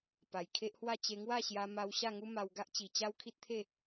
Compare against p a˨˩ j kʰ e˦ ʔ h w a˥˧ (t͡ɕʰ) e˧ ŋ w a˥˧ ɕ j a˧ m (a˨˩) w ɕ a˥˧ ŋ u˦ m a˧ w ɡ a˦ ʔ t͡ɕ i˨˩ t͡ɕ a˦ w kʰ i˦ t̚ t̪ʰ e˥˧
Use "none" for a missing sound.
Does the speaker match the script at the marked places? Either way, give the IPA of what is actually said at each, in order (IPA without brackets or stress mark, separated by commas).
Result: t͡ɕ, a˧